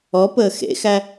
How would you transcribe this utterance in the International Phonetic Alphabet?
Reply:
ɔ p əː x ḛ x æ

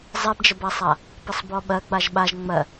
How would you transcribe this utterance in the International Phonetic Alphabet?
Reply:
zˤ ɛ b d͡ʒ ə b a sˤ a | p ə sˤ b ɔ ɓ ɜ ɡ͡b a ʒ ɓ a ʒ ŋ͡m ɜ

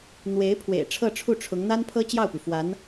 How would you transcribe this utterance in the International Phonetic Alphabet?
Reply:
n̪ w e˧˥ ɪ̯ pʰ w ḛ˨˩ ɪ̯ ʈ͡ʂʰ ɤ˥˧ ʈ͡ʂʰ u˥˩ ʈ͡ʂʰ ʊ˧˥ ŋ n̪ a˥ n pʰ ɤ˥ t͡ɕ j ɑ˥˩ ʊ̯ p y˩ f w a˧˥ n

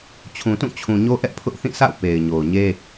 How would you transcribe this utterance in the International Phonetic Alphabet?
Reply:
t͡ɕʰ ũ˨ t ũ˦˨ t͡ɕʰ ũ˨ ɲ o˦ ʔ ɛ˦ ʔ pʰ ʊ˦ ʔ θ ĩ˦˨ sʰ a̰˦˨ ʊ̯ p e˨ ɪ̯ ɲ o˨ ʊ̯ ɲ e˦

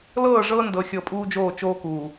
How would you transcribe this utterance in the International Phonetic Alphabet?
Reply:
l ɤː˦˨ ʐ ɤː˦ n d ɤ˨ xʲ ɤ˨ pʼ uː˦ d͡ʒ oː˦˨ t͡ʃ oː˦ k uː˨

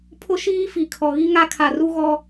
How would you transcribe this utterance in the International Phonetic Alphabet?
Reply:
pʰ ʊ˦ ʃ iː˦ f i˨ kʰ ɔ˨ ɣ i˦ ŋ a˦ kʰ a˨ r u˦ ɣ ɔ˦

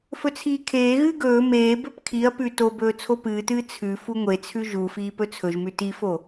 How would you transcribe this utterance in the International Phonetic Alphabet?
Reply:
f ɵ t͡sʰ iː kʰ eː ɣ ɨː ɡ ɵː m eː b ɵ p kʰ i ɐ̯ p ʉ t o b ɵː t͡sʰ o p ɨː t ɨː t͡sʰ ʉ f u ŋʷ e t͡sʰ ʉ ʒ u f iː p ɵ t͡sʰ ɵ ʒ m ʉ t i f o

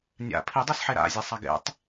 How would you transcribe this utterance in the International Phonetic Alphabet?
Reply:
nʲ a̰ pʰ i dˤ i s ħ e ɾ a̰ zʲ e sˤ a ɡ ḛ tˤ

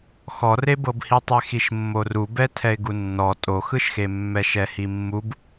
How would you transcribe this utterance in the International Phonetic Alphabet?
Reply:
x ɔ r e b ɤ b h i tˤ ɛ x i ʃ mː o r u b ɛ tʰ ɛ ɪ̯ ɡ u nː ɔ tʼ o x ɯ ʃ x e mː ɛ ʃ ɛ h i mː u b

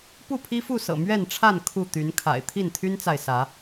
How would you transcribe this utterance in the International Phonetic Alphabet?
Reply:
p u˥˨ pʰ i˦ f u˥˨ s ɤ̰˨˩ m ɥ ɛ˥˨ n ʈ͡ʂʰ a˥˨ n kʰ u˥˨ t̪ y˨˦ n kʰ a̰˨˩ ɪ̯ t̪ʰ i˥˨ n t̪ʰ y˦ n t͡s a˨ ɪ̯ s ä˨˦

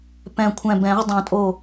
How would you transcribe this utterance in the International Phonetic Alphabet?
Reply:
p ɛ̃˧˩ kʷʰ ɛ̃˧˩ b ɛ̃˨˩˦ ʁ dˤ õ˨˩˦ tʼ o˧˩

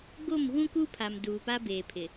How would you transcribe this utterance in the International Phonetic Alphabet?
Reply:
ɡ o˦˨ m ɣ ũ˦ k u˦ pʰ a˨ m d uː˨ p a˦ b eː˨ pʰ ɪ˨

